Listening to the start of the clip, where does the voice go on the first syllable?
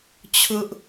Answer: high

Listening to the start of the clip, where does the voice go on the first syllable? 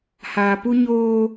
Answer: low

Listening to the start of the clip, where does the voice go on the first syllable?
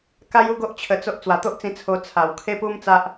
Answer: high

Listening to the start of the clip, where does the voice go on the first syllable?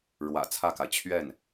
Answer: low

